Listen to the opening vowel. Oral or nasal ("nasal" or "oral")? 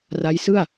oral